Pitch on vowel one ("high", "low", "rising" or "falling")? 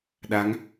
rising